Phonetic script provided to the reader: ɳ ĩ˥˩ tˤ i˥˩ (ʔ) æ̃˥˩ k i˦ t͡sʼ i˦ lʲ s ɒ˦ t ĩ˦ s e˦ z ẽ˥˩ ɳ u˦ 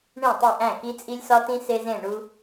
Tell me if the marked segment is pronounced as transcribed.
yes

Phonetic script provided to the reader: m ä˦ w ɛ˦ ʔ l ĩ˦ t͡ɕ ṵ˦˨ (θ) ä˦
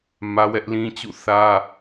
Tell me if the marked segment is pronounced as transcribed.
yes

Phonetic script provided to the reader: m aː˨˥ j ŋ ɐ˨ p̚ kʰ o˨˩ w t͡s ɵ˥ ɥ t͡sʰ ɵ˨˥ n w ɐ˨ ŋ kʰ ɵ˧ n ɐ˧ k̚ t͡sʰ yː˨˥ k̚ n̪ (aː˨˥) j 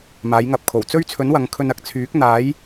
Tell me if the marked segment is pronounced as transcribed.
yes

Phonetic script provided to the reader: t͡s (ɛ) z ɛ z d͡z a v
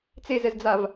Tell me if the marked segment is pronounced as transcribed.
no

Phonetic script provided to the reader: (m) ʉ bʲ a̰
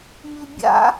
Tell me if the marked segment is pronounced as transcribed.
yes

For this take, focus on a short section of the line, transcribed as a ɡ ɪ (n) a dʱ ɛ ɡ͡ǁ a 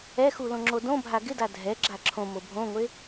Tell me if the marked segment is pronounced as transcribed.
no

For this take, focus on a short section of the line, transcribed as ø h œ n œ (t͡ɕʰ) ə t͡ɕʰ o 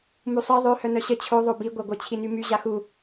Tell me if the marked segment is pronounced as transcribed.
no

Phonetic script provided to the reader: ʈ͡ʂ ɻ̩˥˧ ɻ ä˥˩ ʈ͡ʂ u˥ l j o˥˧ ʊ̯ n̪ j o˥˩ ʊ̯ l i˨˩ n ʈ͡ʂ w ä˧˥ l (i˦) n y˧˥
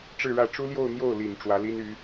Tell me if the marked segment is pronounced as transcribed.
no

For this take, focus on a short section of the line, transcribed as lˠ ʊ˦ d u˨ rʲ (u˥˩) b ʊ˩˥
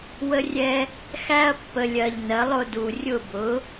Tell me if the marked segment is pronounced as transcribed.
no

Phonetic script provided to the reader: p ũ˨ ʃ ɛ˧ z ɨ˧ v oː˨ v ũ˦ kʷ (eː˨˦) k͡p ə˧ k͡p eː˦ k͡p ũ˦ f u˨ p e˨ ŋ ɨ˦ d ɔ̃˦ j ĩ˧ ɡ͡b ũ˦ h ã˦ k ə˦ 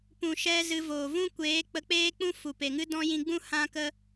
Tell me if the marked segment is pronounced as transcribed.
yes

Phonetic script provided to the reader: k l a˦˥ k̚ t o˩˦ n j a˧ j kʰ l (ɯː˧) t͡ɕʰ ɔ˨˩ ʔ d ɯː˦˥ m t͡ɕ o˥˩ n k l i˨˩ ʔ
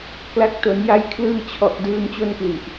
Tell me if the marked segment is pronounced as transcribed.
yes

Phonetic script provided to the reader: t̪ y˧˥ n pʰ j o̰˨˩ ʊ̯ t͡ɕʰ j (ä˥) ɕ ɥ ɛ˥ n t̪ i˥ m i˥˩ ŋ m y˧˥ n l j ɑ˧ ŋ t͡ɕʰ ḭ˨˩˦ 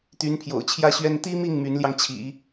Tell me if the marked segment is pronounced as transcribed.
yes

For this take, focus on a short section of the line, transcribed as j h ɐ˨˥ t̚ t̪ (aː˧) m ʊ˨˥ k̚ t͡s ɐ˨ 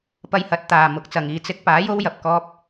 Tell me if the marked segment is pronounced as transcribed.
no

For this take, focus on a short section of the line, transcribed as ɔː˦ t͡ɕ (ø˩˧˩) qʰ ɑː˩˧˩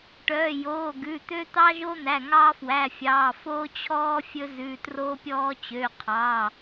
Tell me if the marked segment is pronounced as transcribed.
yes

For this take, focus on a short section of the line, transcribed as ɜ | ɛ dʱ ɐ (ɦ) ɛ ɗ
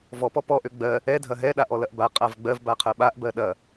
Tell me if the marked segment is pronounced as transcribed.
yes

